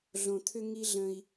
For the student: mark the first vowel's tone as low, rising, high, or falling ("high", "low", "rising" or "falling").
low